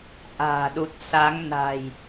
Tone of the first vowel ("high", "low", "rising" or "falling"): low